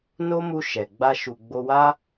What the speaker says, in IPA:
no˦mu˧ ʃɛ˨ ɡ͡ba˧ʃu˨ ɡ͡bo˧wa˦

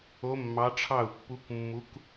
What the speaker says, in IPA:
o˦˥mːɑ˦˥ ʈ͡ʂʰɑ˥˧u̯ pːu˦˥kmːu˦˥k

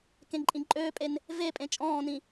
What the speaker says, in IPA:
kẽǃʼĩǃʼøːpʼen | vepʼẽ t͡ʃʼɔ̃ːnĩ

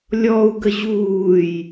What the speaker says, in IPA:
lʲɔu̯ɡə ʑuːj

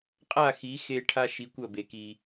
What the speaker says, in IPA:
qʼa˥˩xi˩˥xe˧ ʈʰa˥ʃi˩˥kʷ ɐ˥˩be˩ki˩

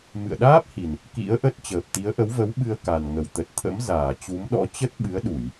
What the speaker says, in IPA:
mɨ̰˧˨ə̯ɗaː˦˥p̚hi˨˩n | kḭ˧˥ə̯ʔə˦˥t̚ t͡ɕəː˨˩p̚t̪i˨˦ə̯ʔə˨˦wvə˨˦w ɓɨ˧ə̯ka˨˩nŋə˧˩w t̪ə˨˩t̚t̪ʰə̰˧˥m zaː˧˩t͡ɕu˨˦mɗɔ̰˧˥ t͡ɕə˦˥t̚ɓɨ˨˦ə̯ɗu˧˩˨j

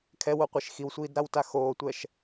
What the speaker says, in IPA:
kʰɛwoqʷiʃ xiwsʷiːdɾawta xoːtʷɛʃ

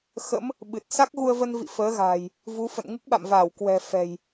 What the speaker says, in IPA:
xə̰˧˥m | ɓɨ˨˩t̚ sa˦˥k̚ɣu˧ə̯və˧nvḭ˧˨ fəː˨˦ɣa̤ː˨˩j | vu˨˦fə̰˧˨n ŋɨ˦˥k̚ɓa̰˧˨mvaː˧˩w kwɛ̤˨˩ fɛ̤˨˩j

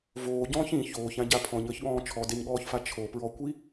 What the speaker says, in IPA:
voːɟɔ̃ːç ĩ çoːçãɟa pʰɔ̃ɲəːçɠɔ̃ː t͡ʃʰɔdeɲɠɔːçfa t͡ʃʰopɹɔkʷi

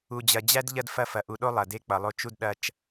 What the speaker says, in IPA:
u˨d͡ʑɐ˨d͡ʑæ˦d ʎɐ˦dfɐ˦˨fɐ˨ ʔu˨ɗo˦ lˠɐ˨ de˦k͡pʌ˨lˠo˦ t͡ʃu˦dɗɐ˦t͡ʃ

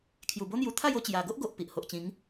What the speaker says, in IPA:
kʰju˨˩bo˦n̪ju˧ t̪ʰa˥˧jo˥˧t͡ɕja˨˩ ɡo˦ʔɡo˨ʔ pi˨ʔho˨ʔ t͡ɕĩ˨˦ŋ

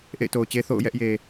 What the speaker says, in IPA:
ʔḛ˦˨ɪ̯to˨ʊ̯t͡ɕe˦ θo̰˦˨ʊ̯ jɛ˦ʔje˨

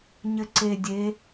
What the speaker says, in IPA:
ɲɘǀe dʲe

